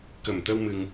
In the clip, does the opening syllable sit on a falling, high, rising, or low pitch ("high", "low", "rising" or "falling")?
low